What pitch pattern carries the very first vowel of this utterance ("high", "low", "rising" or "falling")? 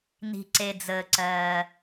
low